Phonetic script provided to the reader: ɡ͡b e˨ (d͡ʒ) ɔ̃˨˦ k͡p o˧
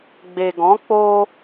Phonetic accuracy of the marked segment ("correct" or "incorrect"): incorrect